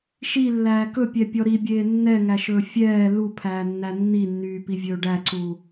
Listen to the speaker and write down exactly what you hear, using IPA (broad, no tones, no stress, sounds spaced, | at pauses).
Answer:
ʃ i lː æː k ɵ pʲ ɛ pʲ ɔ ɾ i bʲ eː nː ɛ ŋ æ ʃ ɵː fʲ ɛː l u pʰ æː nː æ nː i nː yː p i vʲ ɵː ɖ æ ǀ u